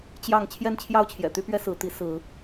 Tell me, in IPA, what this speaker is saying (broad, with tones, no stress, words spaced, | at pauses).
t͡ɕjɑ˥˨ŋ t͡ɕʰjɛ˥˨nt͡ɕʰjɑ˥˨ʊ̯t͡ɕʰjɛ̰˨˩t̪y˦ pɥɛ˦sɹ̩˨˦ t̪i˨˦sɹ̩˨˦